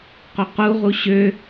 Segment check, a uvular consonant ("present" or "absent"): present